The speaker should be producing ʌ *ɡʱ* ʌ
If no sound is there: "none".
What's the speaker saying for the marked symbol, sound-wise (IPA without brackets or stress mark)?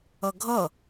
ɡʱ